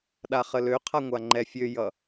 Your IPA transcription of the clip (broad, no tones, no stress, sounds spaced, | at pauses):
ɗ a χ ə l ø qʰ a ŋʷ a ŋ͡ǃ ɛ fʲ ø j ʌ